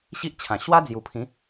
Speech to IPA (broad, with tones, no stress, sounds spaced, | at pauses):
ɕ i˦ ʔ t͡ɕʰ ã˨˩ ɕ w a˦ d͡z j u˨˩ pʰ ĩ˨˦